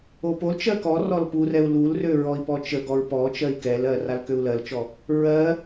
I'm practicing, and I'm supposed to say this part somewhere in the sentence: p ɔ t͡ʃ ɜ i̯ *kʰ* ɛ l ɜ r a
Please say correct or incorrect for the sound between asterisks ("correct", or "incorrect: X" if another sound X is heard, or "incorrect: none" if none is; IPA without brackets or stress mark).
incorrect: k